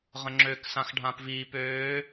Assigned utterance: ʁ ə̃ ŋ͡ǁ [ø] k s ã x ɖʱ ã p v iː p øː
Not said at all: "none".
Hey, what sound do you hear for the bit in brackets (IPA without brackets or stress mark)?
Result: ø